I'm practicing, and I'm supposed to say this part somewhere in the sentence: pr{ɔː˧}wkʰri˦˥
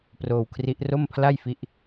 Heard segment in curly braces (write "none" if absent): oː˧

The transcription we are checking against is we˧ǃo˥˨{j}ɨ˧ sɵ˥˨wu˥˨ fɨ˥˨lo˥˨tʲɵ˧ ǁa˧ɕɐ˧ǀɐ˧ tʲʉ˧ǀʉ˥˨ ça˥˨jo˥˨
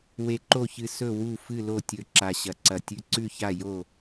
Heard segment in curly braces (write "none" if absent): ç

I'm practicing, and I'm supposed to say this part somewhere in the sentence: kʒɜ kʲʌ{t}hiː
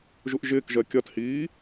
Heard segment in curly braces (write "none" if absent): t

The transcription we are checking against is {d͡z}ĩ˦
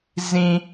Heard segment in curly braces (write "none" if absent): z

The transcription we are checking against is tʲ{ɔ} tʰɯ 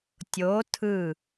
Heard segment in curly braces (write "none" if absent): o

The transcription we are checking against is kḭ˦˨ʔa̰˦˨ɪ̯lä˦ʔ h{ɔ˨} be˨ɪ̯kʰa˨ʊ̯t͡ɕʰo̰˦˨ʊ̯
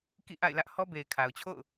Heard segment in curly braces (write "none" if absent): ɔ˦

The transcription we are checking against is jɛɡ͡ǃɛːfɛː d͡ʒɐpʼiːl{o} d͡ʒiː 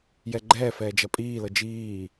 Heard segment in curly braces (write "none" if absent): ɤ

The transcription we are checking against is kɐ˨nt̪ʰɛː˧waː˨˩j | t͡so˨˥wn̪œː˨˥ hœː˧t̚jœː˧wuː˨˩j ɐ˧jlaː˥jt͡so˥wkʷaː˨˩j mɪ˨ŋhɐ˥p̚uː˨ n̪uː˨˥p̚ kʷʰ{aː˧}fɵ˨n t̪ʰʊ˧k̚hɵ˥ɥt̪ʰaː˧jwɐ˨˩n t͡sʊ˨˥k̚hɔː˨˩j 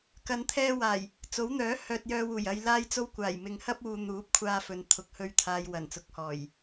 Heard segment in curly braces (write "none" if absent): aː˧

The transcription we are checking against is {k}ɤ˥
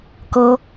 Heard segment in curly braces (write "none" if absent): k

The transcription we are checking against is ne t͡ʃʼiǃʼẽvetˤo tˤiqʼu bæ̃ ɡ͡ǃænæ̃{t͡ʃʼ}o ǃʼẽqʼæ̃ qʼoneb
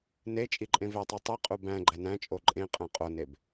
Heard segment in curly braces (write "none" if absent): t͡ʃʼ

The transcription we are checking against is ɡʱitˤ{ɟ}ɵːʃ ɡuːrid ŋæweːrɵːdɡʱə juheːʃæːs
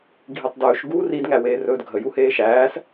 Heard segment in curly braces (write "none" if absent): d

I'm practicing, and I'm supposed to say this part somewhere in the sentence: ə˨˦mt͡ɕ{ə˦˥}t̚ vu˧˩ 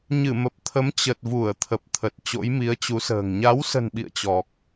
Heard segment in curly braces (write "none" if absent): ə˨˩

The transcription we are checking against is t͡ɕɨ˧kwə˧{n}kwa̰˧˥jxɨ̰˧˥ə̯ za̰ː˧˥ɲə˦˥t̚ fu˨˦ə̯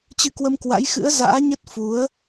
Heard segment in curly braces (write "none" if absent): m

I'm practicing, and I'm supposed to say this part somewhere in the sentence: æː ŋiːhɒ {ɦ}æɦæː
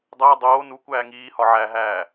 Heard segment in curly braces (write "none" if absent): ʕ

